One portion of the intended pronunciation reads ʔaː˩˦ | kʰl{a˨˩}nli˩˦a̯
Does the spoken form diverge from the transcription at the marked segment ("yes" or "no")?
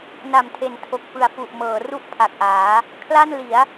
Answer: yes